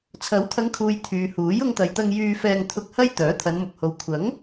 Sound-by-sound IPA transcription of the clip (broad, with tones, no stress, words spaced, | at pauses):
t͡sʰɐ˨˥w t̪ʰɐ˨˧ŋkʰuː˨j t̪ʰyː˨ huː˨˥j ʊ˧ŋt̪ɐ˨jt̪ɐ˧ŋ jyː˧fɛː˧ŋ t̪ʰʊ˧k̚ hɐ˥j t̪œː˨˥t̪ʰɐ˨˧nmʊ˨k̚ho˨˧w kʷʰɐ˨˥ŋ